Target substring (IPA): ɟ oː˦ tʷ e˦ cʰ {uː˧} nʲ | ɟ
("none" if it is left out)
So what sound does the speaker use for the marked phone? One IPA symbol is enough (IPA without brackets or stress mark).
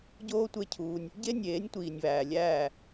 uː˧